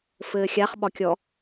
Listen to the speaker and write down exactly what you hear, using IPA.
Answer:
f ɘː xʲ a χ ɓ ɒ kʲ ɔ

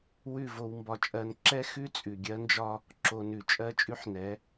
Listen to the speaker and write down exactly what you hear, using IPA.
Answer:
w ʉ˦˨ v o˧ w m b ɒ˧ t͡ʃʼ ɜ˧ n ǁ ɛ˦ x ʉ˦ t͡sʼ ʉ˨ ɡʲ ɜ˦ n d͡ʒ ɒ˦ | ǁ o˧ n ʉ˨ t͡ʃʼ ɜ˦ t͡ʃʼ ʉ˦ ħ n ɛ˨˦

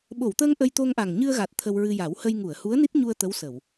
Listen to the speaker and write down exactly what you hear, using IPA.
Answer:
ɓ o˨˩˨ w t̪ əː˧ ŋ ʔ ə˧ j t̪ o˧ ŋ ʔ a˨˩ ŋ ɲ ɨ˧ ə̯ ɣ a˨˩ t̚ t̪ʰ ə˧ w ɹ ɨ˧ j a˨˩˦ w h ə˧ j ŋ u˨˩˨ ə̯ h u˧˥ ə̯ n i˦˥ t̚ ɲ u˧ ə̯ t̪ ə˧˥ w s ə˨˩˨ w

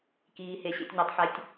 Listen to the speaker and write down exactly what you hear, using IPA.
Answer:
k iː˨ h e˨ ɕ ḛ˨ tʲ ɲ a˨ tˤ ħ ɛ˨ tʲ

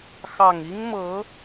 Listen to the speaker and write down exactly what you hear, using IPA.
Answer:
x ɑ˨˩ ŋ i˥ ŋ m ɤ˧˥

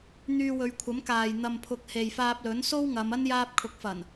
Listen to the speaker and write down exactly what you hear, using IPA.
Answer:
n̪ yː˧ w ɵ˨˧ ɥ kʷʰ ɐ˨˥ m k aː˨ j n̪ ɐ˧ m pʰ ʊ˧ k̚ h e˨ j f aː˧ p̚ l ɵ˨˥ n s o˥ w ŋ ɐ˨˧ m ɐ˥ n j aː˧ p̚ kʰ ʊ˨˥ k̚ f ɐ˨˩ n

